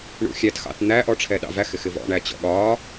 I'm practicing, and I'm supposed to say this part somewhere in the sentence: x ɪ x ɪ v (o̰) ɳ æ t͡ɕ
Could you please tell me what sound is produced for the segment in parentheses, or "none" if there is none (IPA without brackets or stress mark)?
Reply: ɔ̰